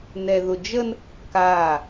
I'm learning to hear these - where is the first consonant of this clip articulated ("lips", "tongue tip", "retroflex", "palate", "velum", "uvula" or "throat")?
tongue tip